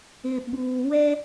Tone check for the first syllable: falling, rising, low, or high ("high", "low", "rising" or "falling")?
low